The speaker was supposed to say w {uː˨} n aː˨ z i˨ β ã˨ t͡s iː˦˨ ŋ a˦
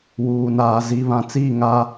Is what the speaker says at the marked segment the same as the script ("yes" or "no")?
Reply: yes